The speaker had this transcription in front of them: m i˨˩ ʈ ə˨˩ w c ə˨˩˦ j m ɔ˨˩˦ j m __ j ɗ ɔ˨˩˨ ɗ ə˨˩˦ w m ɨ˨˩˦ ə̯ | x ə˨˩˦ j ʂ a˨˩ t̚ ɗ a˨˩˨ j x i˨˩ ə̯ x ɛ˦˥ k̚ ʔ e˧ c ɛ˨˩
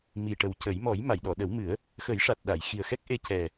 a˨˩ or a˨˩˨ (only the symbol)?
a˨˩˨